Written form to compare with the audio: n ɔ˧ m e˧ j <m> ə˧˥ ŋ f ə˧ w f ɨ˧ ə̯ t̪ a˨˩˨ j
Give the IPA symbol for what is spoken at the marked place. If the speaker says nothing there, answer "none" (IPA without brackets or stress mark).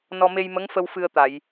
m